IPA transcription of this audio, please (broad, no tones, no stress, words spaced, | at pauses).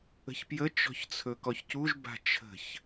ə̤çpjə t͡ʃɔ̤çt͡sʰɵkɔçcuʒ ba̤t͡ʃʰə̤ç